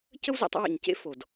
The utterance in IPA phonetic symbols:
c ə˦ w z ḛ˨ tˤ ə̰˦ w ḛ˨ ɲ c ḛ˦ f o˨ d

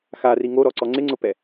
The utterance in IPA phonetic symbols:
x a r i ŋ o ɾ ɔ ǀ ɔ ŋ͡ǀ ɪ ŋ͡ǀ ʊ p ɛ

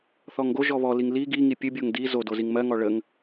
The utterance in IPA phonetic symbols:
θ ɔ ŋ ɡ o ʒ ɔ β ɔ l i ŋ l i ɡ i ŋ i pʲ ə bʲ o ŋ d i z o d o z i ŋ m ɜ ŋ ɔ ɭ ə ŋ

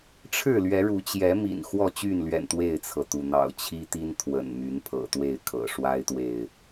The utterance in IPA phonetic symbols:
ʈ͡ʂʰ ɻ̩˥˨ l ɥ ɛ˨˦ ɻ u˨˦ t͡ɕ j ɛ˨˦ m ḭ˨˩ n x w ɔ˥˨ t͡ɕ y˥˨ n l ɥ ɛ̰˨˩ n t̪ w e˥˨ ɪ̯ t͡sʰ ɤ˩ t̪ u˩ n̪ ɑ̰˨˩ ʊ̯ t͡ɕʰ i˦ t̪ i˦ n t̪ʰ w ə̰˨˩ n m y˨˦ n pʰ ɤ̰˨˩ t̪ w e˥˨ ɪ̯ kʰ ɤ̰˨˩ ʂ w a˦ ɪ̯ t̪ w e˨ ɪ̯

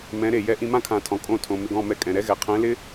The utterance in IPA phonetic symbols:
m ɛ̃˨˦ ɾ e˨ j ɛ˧ ʔ ĩ˧ m ã˦ kʰ ã˨ tʰ ɔ̃˨ kʼ õ˦˨ tʰ õ˨ m ɪ˧ ɡ ɔ̃˦˨ m ɛ˧ kʼ ɛ̃˨ ɾ ɛ˦ ɣ ɛ˨ qʰ ɛ̃˨˦ l ɪ˦

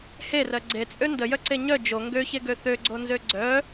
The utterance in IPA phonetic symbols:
h e r ɜ ɡ͡ǀ e t͡sʼ ø n d ə j œ ǀ e ɲ œ d͡ʒ o ŋ ɡ ø ç e ɡ ø θ ø ɡ͡ǀ o n z ø ɡ͡ǀ œ

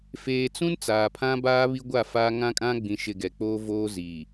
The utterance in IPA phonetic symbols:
f eː˨ t͡s ũ˦ n t͡s aː˨ pʰ ã˦ b aː˦ β i˦ ɡʷ a˦˨ f aː˦ ŋ ã˦ kʼ ã˦ ɡ͡b ĩ˨ ʃ ɪ˨ ɡ ɛ˨ k͡p oː˦ v oː˦ z iː˨

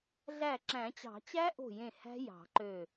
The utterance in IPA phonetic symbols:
ɮ æ˧˩ ǁ æ̃˨˩˦ t͡ɕ ɑ̤˨˩˦ t͡ɕ æ˦˥ ʔ o̤˧˩ j ẽ˧˩ h æ̤˦˥ j ɑ̤˨˩˦ ǃ ø˧˩

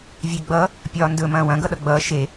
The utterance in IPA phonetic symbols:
vʲ e ɡ͡b ʌ | pʲ ɒː n d ɵ m ɐ̃ː w ɐ̃ ɡ ʌ ɗ ʌ ɡ͡b ʌː ʃ e

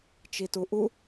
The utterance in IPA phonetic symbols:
t͡ʃ i t u ʔ u

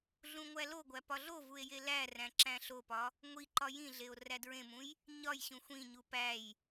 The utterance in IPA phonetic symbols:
ɮ ũ ŋʷ æ l o ɡʷ æ p ɒ ɮ o v u e̯ j e l æ r æ̃ ǁ æ̃ ɬ o p ɒ | ŋʷ i ǃ ɒ j ĩ ɮ e o̯ r æ d ɹ ẽ m ũ j | ɲ ɒ j ɕ ũ xʷ ĩ ɲ u p æ j

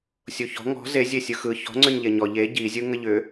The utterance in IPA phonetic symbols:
sʲ o ç ɔ̤ ŋ ɔ̤ z e zʲ e sʲ ɯ x ɯ ç ɔ̤ ŋ͡ǀ ʏ ɲ ʎ e ɲ ɔ ʎ e ɟ i zʲ ɯ ŋ ə ʎ ʏ

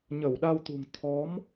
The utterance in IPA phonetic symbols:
ɲ ə˧˩ w ɗ a˧ w t̪ ṳ˨˩ ŋ t̪ʰ ɔ˨˦ m

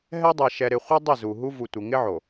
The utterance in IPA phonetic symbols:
ɦ ɛ˦ dˤ ɛ˨ ʃ ɛ˨ ɾ ɪ˨ χʷ ɛ˦ dˤ ɪ˦˨ z u˨ ɦ u˦ v u˨ tʷ ɪ˨ ŋ ɪ˦ ʕ o˨

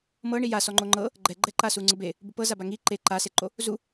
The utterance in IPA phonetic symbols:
m ɤ ɳ i j a s ɔ ŋ͡ǃ o ŋ͡ǃ ɤ | ɡ͡ǃ ɛ ɡ͡ǃ ɛ ǃ a s u ŋ͡ǀ ɯ b e | b u p ɤ z a b a ŋ i ǃ e ǃ a s e ǃ o | z u

